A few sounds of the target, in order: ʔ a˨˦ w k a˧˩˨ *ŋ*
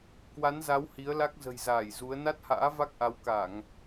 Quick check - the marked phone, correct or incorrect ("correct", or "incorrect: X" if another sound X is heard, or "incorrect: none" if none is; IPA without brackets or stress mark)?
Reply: correct